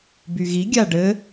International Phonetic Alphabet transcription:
byɣi ɡʲaɖɘ

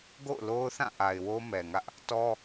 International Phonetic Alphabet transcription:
ɡo̰˦˨ʊ̯lo˦ʊ̯θã˦˨ ʔa˨ɪ̯wo˦ mɛ˨ŋä˦ʔ | tɔ˦

